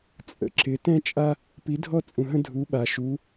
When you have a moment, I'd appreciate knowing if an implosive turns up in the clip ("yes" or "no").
yes